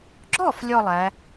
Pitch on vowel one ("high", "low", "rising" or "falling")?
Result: falling